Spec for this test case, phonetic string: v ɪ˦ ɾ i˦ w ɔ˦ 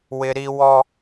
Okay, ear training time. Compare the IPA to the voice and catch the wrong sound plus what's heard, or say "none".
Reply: v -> w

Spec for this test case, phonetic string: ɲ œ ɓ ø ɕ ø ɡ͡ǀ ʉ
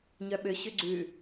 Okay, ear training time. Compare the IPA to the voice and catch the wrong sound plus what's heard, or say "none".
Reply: none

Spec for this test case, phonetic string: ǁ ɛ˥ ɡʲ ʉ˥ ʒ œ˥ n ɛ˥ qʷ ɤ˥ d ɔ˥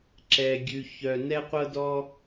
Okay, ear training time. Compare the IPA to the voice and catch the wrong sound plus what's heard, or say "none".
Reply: ʒ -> ç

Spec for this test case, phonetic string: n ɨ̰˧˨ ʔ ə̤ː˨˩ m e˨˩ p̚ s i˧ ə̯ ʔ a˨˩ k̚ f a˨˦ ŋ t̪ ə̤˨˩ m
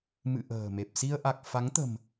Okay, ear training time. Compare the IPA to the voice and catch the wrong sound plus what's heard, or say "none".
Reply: n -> m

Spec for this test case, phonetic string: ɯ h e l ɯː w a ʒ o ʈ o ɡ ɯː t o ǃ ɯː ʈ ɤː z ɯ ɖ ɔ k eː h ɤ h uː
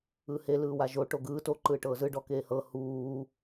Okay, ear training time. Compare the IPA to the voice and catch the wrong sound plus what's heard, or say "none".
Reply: none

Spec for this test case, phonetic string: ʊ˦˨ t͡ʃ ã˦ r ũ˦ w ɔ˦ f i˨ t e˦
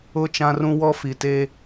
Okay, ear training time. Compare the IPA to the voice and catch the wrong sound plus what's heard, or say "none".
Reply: none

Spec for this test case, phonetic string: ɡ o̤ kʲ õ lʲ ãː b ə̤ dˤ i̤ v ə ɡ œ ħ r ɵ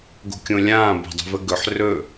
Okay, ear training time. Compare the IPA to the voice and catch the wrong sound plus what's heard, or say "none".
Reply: œ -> ɵ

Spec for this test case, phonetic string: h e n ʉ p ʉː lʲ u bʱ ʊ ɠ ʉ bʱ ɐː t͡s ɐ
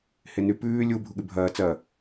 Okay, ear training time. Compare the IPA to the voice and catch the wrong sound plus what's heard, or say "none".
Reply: ʊ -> u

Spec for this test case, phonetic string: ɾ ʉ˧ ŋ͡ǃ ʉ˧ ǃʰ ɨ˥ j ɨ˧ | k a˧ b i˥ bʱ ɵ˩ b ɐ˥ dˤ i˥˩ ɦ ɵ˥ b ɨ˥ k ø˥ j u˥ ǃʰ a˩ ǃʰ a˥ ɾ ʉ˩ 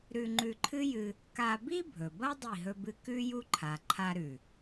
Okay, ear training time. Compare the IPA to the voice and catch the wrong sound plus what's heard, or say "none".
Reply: ø˥ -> ʉ˥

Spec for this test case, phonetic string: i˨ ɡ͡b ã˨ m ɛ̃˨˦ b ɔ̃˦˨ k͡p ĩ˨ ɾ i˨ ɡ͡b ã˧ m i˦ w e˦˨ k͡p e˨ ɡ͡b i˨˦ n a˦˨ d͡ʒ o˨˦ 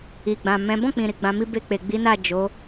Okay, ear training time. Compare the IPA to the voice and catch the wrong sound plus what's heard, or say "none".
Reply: w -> b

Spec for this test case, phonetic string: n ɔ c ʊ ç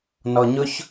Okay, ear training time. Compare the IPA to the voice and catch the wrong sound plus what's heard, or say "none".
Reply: c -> ɲ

